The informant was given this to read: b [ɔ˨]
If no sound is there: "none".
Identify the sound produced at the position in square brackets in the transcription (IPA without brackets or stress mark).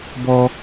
ɔ˦